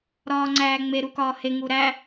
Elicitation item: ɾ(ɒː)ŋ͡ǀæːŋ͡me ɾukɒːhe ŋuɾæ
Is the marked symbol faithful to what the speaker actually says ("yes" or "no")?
yes